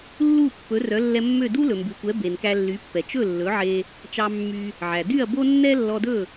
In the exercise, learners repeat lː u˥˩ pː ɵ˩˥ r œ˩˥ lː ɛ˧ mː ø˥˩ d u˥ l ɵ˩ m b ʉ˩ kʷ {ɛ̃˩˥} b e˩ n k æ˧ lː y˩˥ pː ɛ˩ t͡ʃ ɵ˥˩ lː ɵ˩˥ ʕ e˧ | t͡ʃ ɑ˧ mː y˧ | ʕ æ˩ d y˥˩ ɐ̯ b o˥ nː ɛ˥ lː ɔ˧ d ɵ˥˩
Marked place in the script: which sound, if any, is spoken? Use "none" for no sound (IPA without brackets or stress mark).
ɛ˩˥